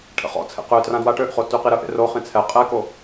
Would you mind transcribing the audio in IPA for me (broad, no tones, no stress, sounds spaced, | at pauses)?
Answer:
ʈʰ ə̰ χ ɔ̰ t͡sʰ ḛ q ø t r ã d w a ʈ ø ʔ χ o t y q i ɾ ə ʔ ḛ r o χ ĩ t͡sʰ ɛ qʼ ɛ k o